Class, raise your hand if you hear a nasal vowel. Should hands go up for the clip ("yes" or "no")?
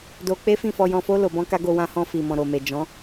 yes